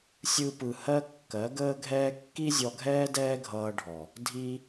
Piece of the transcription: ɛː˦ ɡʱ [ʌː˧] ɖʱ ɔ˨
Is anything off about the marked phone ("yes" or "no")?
no